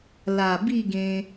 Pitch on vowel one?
low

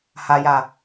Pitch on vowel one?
low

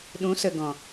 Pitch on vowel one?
rising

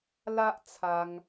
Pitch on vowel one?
high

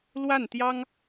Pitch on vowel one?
falling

